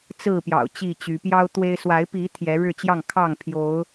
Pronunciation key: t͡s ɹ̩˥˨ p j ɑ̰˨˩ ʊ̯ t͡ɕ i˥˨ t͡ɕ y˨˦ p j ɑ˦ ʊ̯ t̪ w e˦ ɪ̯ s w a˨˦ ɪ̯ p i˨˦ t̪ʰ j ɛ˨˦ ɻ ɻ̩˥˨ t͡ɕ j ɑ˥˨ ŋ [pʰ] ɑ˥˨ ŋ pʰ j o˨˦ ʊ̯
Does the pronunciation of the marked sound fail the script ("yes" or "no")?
yes